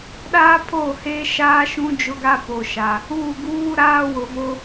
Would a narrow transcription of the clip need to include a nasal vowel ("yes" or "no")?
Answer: yes